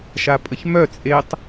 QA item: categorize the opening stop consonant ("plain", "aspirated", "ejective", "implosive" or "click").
ejective